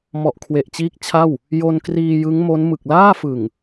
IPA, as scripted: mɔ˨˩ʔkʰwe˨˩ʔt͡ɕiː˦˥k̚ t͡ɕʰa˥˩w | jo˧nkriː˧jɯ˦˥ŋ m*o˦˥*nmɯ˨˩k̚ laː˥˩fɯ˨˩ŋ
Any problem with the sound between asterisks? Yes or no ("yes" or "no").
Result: no